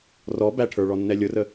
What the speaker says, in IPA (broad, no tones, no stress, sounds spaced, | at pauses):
r ɔ b æ ʈʰ ə˞ ɭ ɔ nː ɛ lʲ ʊ r ə